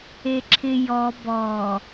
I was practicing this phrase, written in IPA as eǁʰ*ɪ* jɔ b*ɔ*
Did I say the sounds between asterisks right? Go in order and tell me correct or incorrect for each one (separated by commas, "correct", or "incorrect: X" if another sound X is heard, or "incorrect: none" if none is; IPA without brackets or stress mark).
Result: correct, correct